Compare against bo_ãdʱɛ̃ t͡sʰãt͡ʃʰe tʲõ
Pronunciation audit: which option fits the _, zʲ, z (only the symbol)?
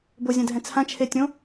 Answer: zʲ